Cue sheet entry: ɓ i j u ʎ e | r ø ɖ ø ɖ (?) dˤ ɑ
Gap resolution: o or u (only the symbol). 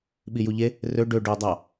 o